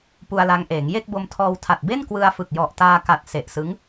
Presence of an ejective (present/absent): absent